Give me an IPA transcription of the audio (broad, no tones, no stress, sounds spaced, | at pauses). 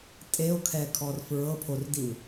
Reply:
tʼ e o̯ kʰ ɛ kʰ ɔ r f ɹ ɤ pʰ o r d i w